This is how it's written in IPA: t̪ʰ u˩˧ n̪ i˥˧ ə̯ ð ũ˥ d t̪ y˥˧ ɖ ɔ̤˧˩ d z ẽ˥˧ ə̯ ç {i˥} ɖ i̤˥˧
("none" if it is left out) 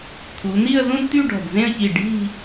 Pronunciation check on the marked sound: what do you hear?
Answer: i˧˩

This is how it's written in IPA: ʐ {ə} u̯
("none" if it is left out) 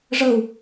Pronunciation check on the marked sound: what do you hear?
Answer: ə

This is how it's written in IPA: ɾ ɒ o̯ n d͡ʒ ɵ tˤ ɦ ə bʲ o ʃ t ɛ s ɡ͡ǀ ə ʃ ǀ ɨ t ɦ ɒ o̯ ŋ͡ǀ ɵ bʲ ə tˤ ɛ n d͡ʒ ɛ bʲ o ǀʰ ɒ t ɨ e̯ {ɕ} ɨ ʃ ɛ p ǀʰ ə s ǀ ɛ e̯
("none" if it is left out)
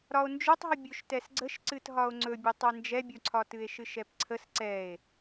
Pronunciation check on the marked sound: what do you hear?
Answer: ʃ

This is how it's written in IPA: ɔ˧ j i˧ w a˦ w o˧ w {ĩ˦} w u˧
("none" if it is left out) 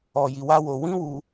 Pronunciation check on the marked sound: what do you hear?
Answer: ĩ˦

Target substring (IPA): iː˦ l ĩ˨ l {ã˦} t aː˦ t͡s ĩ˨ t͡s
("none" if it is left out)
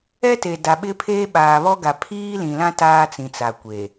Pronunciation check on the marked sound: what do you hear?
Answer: ã˦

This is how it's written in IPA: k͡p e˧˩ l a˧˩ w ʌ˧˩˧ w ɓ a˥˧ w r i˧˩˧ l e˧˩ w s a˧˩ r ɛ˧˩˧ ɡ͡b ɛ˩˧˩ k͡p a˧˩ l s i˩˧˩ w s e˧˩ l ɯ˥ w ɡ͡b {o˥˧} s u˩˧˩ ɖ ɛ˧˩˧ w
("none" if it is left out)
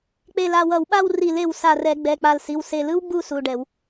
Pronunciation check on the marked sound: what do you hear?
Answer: u˥˧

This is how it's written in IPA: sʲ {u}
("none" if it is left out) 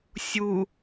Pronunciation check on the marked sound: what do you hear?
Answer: u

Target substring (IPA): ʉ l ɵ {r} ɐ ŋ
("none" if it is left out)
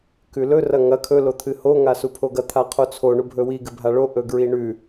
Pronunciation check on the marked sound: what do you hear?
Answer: r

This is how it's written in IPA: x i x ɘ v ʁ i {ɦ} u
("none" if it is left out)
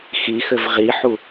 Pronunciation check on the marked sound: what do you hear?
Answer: ħ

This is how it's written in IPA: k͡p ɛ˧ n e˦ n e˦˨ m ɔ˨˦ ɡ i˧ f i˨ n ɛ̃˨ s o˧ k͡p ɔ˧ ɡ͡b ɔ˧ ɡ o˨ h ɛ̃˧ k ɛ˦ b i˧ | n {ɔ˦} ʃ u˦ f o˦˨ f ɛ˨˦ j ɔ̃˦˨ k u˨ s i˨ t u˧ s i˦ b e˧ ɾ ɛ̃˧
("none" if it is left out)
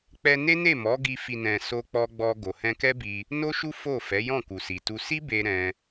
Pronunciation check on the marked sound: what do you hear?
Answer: o˦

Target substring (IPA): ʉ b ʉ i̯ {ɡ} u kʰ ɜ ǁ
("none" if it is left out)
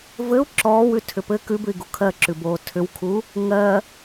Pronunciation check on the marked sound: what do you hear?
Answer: ɡ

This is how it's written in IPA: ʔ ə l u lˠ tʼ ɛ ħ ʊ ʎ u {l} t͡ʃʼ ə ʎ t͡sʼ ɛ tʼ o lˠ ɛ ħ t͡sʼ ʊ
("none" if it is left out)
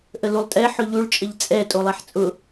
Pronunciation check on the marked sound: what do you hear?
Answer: ɭ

